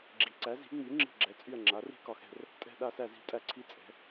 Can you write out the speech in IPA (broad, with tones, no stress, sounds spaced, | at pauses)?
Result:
ɡ͡ǁ i˩˥ ǀ æ˩˥ z i̤˩˥ ŋ͡m y˩˥ ŋ͡ǁ i̤˦˨ ɡ͡ǁ ɛ˩˥ t͡sʼ y˦˨ ɐ̯ ŋ͡ǁ a˩˥ r i̤˦˨ k ɒ˦˨ x ɛ̤˦˨ r | tʼ ɛ̤˦˨ ɗ a˦˨ s æ˦˨ z i̤˦˨ tʼ æ˦˨ ǀʰ i˦˨ t͡sʼ ɛ̤˩˥